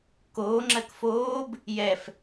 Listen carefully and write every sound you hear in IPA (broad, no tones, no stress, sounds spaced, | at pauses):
k oː ŋ͡ǁ ɜ k f oː b | j ɛ f